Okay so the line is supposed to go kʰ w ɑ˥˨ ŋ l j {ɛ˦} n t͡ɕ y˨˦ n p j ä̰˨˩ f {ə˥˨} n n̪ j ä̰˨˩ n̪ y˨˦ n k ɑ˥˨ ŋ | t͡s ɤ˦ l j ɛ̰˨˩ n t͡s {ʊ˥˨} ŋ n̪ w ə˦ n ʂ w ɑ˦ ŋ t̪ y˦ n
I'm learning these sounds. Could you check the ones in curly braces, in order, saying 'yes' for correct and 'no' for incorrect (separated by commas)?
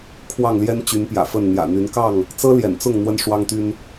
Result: yes, yes, yes